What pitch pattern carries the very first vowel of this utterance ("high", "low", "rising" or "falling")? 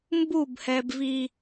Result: falling